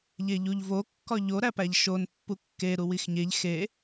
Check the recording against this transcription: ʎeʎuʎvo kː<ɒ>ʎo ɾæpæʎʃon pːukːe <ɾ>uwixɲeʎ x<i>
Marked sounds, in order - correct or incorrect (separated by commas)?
correct, correct, incorrect